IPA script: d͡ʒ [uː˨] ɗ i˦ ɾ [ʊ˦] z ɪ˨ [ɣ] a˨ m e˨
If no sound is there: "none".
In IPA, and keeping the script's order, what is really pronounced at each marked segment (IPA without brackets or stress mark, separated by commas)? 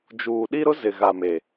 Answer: uː˨, ʊ˦, ɣ